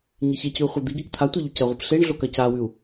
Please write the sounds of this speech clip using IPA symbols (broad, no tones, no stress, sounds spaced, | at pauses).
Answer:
ɲ e ç e c ʉ u̯ χʷ ɐ d̪ i ɡ e k t̪ʰ a tʷ e ʎ u c ɐ ʁʷ ɨ p ɬ e ɳ ɮ o k ɐ c a w ʉ u̯